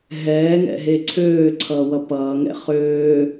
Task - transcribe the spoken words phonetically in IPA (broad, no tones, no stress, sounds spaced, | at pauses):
ɦ ɛː ŋ ɛ̰ ɦ e ǀʰ øː ǀʰ ʌː w ʌ p ʌː ŋ ɛ̰ χ øː